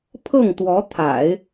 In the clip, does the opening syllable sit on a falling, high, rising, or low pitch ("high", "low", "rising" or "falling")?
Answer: falling